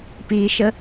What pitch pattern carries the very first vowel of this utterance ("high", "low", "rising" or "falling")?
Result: low